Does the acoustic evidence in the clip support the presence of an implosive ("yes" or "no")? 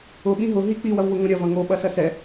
yes